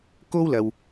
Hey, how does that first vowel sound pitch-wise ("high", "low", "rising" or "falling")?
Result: high